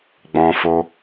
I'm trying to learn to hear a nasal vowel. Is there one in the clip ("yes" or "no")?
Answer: yes